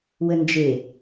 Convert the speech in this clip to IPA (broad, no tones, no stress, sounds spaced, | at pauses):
w ə n d͡ʒ e